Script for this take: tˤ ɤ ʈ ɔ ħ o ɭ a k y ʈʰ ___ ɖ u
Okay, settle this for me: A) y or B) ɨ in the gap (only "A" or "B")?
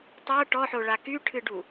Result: B